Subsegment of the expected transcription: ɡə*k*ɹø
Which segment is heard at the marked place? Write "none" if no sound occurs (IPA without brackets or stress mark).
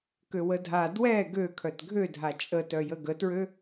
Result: t